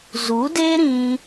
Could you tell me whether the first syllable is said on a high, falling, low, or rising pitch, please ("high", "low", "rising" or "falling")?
rising